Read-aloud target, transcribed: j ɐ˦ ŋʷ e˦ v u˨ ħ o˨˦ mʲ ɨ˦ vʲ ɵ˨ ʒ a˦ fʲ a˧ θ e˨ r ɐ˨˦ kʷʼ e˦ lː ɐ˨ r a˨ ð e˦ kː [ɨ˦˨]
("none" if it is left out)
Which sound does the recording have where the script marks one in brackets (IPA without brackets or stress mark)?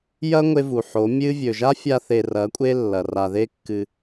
ɨ˧